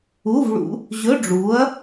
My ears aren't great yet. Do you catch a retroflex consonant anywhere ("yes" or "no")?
yes